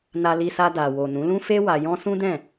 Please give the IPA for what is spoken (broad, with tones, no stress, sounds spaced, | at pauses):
n a˧ l i˧ s a˧ d a˨ w o˨ n ũ˨˦ l ũ˦ f e˦ w a˧ j ɔ̃˦ s ũ˦ d ɛ̃˦˨